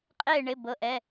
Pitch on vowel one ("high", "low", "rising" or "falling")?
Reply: falling